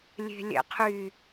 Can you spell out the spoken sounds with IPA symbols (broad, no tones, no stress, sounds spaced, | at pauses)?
lʲ e̤ lʲ ɛ̰ qʰ y